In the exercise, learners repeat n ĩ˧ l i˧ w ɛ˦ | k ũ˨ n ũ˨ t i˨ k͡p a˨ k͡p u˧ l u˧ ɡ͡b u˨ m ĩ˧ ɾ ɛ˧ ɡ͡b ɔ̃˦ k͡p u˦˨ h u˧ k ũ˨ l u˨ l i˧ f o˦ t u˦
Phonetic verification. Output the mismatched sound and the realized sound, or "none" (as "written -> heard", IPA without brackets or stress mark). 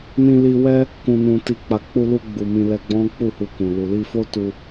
ɾ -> l